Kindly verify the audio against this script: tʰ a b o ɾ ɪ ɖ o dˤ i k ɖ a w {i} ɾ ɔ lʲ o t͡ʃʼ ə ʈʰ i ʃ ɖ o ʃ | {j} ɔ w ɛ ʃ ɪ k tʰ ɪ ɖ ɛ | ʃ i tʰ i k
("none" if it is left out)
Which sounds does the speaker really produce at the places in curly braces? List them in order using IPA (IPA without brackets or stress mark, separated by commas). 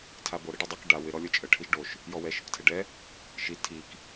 ɪ, j